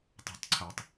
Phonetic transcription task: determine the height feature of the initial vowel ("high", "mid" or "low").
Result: high